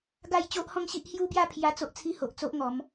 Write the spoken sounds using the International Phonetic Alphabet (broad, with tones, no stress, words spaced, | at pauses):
ɡa˥˧j t͡ɕo˦ʔhɔ̃˦ŋɕi˦ʔ hju˦bja˥˧ pʰja˦t͡so˦ʔ t͡sʰi˦ho˨ʔt͡so˦ʔŋɔ˨˦m